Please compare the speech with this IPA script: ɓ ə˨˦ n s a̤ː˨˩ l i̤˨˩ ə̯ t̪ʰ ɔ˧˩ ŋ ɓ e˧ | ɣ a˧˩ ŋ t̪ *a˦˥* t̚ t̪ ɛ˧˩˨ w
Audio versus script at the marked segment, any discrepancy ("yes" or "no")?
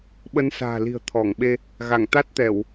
no